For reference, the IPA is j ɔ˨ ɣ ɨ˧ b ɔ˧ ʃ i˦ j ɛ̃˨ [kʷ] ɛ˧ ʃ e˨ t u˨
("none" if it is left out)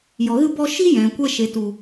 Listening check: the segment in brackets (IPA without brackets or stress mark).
kʷ